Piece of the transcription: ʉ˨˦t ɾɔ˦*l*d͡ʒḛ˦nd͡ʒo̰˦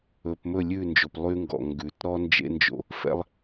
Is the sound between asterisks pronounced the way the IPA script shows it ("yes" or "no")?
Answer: no